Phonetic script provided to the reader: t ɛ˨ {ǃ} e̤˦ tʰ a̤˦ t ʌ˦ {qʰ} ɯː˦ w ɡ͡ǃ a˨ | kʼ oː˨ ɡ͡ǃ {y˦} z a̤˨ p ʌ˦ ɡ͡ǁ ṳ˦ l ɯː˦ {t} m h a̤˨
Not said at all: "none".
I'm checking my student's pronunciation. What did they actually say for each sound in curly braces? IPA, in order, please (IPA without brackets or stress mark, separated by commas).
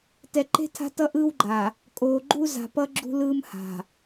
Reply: ǃ, ʔ, u˦, none